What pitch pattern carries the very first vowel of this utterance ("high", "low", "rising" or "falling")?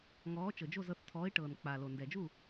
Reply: rising